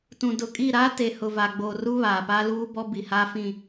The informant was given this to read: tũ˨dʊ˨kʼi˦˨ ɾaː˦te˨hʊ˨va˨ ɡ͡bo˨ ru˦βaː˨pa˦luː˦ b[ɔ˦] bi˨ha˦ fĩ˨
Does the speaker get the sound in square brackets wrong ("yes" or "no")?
no